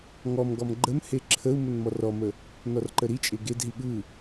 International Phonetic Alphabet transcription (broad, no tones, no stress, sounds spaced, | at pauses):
ŋ ɔ m ɡ ɔ m ɡ͡ǃ ə m h e ǁʰ ə u̯ m ə n m ɔ r ɔ m ə | n ɔ r ǃ ə ɾ i t͡ʃʼ e ɡ e d ɦ i ɠ ɯ